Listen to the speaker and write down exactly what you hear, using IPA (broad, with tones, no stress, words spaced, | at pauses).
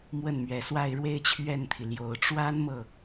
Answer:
mwə˥˩nmɥɛ˨˩swa˥˧ɪ̯ ɻwe˥˧ɪ̯t͡ɕʰɥɛ˥˩nt̪ʰi˩ljo˨˩ʊ̯ ʈ͡ʂwa˥n mɤ˥˩